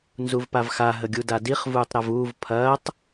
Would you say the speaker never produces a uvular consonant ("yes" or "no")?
no